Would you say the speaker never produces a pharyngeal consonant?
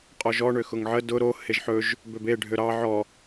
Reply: no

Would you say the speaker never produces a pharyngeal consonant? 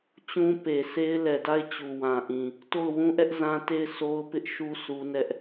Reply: yes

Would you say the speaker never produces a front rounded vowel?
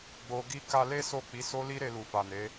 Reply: yes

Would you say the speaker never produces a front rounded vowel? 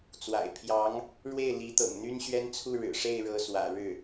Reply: no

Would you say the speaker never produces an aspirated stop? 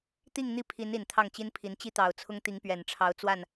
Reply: no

